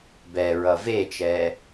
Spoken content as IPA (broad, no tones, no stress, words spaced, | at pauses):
bɛɹʌ vet͡ʃɛ